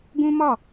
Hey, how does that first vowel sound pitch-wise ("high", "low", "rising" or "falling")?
high